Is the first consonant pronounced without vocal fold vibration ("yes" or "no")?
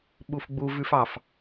no